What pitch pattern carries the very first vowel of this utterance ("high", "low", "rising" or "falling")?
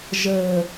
low